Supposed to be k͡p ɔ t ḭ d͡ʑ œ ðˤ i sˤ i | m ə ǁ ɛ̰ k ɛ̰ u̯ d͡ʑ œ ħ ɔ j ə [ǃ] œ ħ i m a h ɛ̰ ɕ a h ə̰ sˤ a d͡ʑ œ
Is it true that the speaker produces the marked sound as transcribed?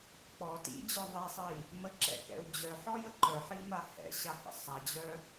yes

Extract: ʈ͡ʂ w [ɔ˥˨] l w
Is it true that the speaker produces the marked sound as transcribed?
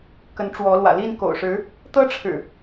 no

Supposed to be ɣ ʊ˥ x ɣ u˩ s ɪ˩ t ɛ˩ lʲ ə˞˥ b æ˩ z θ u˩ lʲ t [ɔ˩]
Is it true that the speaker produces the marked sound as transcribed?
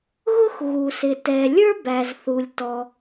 yes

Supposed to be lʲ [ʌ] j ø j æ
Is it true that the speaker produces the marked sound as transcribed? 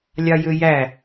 no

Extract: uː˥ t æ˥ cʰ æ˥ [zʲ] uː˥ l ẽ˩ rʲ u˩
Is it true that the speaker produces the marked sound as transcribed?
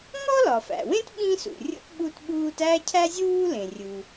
yes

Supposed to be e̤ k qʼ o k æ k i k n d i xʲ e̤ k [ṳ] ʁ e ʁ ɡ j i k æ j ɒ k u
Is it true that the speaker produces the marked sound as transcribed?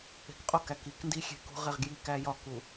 yes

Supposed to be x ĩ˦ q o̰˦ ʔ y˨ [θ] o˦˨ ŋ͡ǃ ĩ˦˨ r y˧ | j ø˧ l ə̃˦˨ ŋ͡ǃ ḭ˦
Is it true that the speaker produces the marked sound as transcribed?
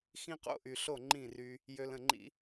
no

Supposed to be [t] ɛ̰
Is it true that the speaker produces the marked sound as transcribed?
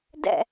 no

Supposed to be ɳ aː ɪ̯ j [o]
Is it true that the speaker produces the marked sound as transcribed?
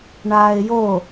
yes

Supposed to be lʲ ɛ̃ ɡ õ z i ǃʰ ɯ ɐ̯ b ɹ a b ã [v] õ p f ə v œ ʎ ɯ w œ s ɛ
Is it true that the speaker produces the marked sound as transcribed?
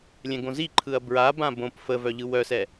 no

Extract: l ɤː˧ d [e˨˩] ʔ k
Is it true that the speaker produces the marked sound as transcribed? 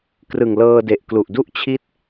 yes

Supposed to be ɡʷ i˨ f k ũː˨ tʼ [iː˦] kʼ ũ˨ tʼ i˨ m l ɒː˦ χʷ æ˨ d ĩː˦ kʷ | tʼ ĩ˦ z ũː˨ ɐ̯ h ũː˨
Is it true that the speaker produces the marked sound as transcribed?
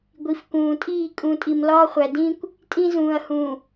no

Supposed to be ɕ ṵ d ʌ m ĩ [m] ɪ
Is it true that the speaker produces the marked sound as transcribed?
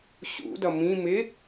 yes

